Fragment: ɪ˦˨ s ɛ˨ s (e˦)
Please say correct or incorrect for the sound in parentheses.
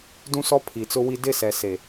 incorrect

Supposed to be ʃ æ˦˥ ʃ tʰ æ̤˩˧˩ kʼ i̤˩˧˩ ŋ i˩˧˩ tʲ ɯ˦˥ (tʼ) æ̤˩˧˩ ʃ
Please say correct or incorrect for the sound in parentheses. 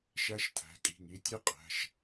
incorrect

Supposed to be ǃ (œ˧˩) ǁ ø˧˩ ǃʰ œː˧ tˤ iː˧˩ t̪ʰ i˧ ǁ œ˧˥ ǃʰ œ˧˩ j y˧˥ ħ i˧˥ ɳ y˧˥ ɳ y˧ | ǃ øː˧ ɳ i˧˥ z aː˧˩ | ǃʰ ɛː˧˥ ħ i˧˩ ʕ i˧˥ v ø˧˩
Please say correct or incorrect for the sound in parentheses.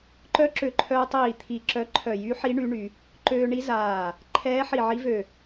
incorrect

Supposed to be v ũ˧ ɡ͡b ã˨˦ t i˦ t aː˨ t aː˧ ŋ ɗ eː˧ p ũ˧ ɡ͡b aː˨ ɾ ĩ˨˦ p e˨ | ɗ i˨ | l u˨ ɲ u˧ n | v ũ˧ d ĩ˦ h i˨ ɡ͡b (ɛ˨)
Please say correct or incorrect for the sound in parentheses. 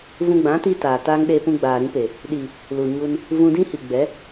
incorrect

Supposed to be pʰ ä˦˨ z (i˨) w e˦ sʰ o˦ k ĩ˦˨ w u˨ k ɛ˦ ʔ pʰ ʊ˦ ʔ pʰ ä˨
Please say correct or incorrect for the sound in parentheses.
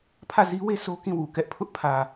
incorrect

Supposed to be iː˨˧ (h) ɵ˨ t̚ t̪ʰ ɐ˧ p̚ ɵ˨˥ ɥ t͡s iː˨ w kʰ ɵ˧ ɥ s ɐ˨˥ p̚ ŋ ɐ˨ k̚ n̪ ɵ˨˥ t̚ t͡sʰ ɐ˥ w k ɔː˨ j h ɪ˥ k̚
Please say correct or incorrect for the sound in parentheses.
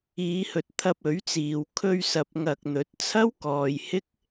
correct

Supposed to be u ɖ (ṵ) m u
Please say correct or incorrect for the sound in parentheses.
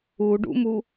correct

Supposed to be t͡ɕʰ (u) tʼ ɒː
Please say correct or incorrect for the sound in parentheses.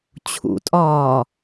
incorrect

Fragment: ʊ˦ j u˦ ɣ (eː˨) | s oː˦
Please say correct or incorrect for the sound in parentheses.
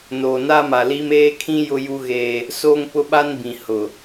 incorrect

